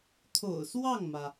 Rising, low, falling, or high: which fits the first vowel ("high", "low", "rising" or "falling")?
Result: low